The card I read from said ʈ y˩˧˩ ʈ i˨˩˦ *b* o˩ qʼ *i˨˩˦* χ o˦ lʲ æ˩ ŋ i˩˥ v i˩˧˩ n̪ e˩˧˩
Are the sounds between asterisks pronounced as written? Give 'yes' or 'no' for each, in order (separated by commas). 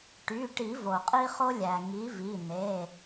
no, no